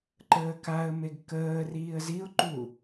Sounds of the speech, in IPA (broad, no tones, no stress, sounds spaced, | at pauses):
ǃ əː k a ə̯ m e ɡ k əː r iː ə̯ z i ʊ̯ ǃ u